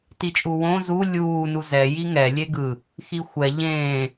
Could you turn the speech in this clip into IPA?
tit͡ʃʼuwõ zu lʲuː nuzɛ jiŋɛ lʲeɡɯ | xixʷɛ ʎẽː

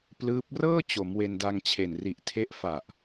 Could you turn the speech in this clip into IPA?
plɯː˦˥p̚ rɤː˥˩ t͡ɕo˩˦m we˧nda˧ŋt͡ɕʰe˨˩n ri˨˩ʔtʰe˦˥ʔ fa˨˩ʔ

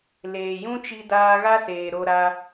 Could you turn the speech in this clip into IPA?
leː˨jũ˦t͡ʃi˧ daː˧ɣa˦seː˨ ɾo˧ɾa˧

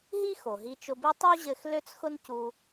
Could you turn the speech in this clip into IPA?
ɦi˥ xo˩ɦi˧ t͡ʃʊ˧bi˥ tˤu˥ʑɘ˧x lø˥t͡sxʊ˥ncu˧

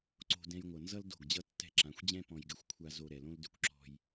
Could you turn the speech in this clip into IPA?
ǀo̤˨ dɛ̃˦j ŋʷʌ˨nzʌ˦l do̤˦˨ɡd͡ʑʌ˦ tːɛ̤˦ǁã˨˦xʷd͡ʑɛ̃˦ pɔ̃˨jɡɘ˨xʷkʷʰa˨zo˨ ɾɛ˨lõ˦ldʏ˦˨kʷ ǁɔ̤˦j

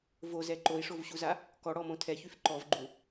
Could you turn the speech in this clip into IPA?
vozɛ ǃoi̯ʂovɕuza | kɔɽɔmõ tʰɛçyf ǃɔvɡ͡ǃu

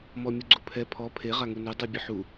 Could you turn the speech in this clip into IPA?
mɔmʲuɡ͡ǀupʰɛ pʰɔ pʰe ʁaŋunu dˤɨbʲəħu

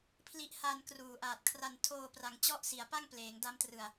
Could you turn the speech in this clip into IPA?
pʰli˦˥ʔha˧n kruː˨˩ʔaː˨˩t̚kʰra˧n tʰoː˧pra˩˦ŋ t͡ɕɔ˥˩ʔ si˩˦a̯pa˥˩ŋ pleː˩˦ŋda˦˥mtrɯ˨˩a̯

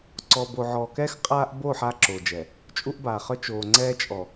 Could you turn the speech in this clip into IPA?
ǀɔː˨bo˨ʕɔː˨kɛː˦x qʼaː˦ʔ bo˦˨ ħaː˦ǁoː˨d͡ʒɛː˨ | t͡ʃʼu˦ʔbaː˨χœ˦ t͡ʃoː˨ ŋ͡ǀɛː˦t͡ʃʼɔ˨

